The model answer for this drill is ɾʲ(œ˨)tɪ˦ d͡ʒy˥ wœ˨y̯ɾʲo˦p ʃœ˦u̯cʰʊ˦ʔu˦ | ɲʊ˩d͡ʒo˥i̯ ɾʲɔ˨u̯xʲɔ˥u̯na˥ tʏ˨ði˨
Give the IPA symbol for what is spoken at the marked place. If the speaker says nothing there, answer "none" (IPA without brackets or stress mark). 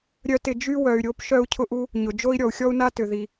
œ˥